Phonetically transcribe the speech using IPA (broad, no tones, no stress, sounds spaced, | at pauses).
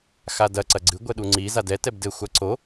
x a d ɐ ǀ ɐ ɡ͡ǀ ɨ ɡʷ ɛ ɗ u ŋ͡ǀ i z a d ɛ t ɛ b d ɘ xʷ a ǀ o